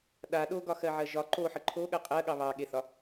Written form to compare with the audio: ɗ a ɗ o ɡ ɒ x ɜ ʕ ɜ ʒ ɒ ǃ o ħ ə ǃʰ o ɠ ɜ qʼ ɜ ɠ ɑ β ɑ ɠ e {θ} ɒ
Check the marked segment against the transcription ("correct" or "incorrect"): correct